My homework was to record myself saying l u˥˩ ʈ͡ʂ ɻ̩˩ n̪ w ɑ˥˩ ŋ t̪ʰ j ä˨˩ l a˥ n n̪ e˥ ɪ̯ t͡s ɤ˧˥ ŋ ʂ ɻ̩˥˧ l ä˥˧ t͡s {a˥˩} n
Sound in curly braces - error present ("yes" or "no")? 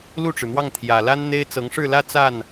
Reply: no